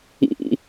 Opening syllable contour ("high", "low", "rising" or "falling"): high